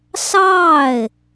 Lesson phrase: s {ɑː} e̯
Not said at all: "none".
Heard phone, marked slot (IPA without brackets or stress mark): ɑː